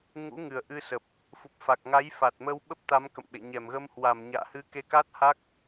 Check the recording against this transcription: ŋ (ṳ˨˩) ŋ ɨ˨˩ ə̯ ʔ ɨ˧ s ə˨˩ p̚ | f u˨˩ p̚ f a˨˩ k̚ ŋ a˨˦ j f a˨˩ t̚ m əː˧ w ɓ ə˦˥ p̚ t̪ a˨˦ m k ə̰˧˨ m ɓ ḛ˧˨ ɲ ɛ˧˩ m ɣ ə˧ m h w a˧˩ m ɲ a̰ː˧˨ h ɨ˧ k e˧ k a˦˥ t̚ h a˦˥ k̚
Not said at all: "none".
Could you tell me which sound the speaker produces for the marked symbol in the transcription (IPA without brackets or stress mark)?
ṵ˧˥